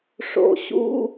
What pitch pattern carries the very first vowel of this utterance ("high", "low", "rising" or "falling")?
low